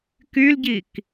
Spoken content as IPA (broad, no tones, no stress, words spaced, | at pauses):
kylɟik